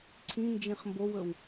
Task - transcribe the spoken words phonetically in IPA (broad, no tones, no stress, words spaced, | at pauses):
ǀʰĩ nd͡ʒĩχmbowɵw